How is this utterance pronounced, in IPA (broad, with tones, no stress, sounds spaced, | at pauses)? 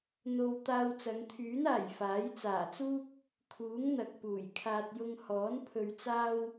n̪ o˨ w t̪ aː˧ w t͡s ɐ˨˧ ŋ t̪ʰ yː˨˥ n aː˨˩ j f aː˨˥ j t͡s aː˨˩ t͡s uː˥ k̚ | kʰ uː˨˥ ŋ n̪ ɐ˨ k̚ p uː˨˩ j kʰ aː˧ t̚ j ʊ˧ ŋ h ɔː˨˥ n pʰ ɵ˧ ɥ t͡s aː˥ w